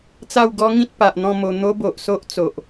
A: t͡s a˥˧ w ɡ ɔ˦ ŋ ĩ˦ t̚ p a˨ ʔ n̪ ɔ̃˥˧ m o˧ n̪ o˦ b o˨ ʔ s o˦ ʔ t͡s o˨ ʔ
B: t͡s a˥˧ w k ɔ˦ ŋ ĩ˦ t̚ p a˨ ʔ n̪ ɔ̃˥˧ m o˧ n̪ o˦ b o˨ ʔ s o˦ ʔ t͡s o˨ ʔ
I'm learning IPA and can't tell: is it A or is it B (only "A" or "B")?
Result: A